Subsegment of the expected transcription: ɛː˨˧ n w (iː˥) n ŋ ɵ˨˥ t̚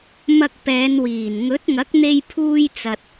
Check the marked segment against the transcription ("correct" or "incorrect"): incorrect